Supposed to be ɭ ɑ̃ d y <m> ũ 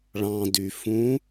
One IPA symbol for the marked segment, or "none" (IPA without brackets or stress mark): f